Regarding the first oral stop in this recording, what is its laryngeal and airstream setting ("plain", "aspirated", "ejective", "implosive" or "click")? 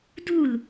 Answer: plain